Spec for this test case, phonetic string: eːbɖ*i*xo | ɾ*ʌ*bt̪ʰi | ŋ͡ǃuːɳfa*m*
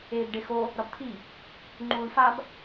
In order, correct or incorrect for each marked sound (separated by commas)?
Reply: incorrect, correct, incorrect